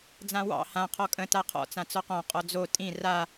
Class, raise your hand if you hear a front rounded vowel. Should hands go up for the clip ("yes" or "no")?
no